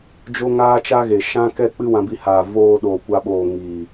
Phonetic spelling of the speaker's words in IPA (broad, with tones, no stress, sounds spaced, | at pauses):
d͡ʒ o˦ ŋ aː˦ t͡ʃ a˦ ɣ e˨ ʃ ã˦ k ɛ˦ k͡p ɨ˦ w ã˧ b i˧ h aː˨ v oː˧ ɗ oː˨ kʷ a˧ ɓ oː˨ ŋ iː˨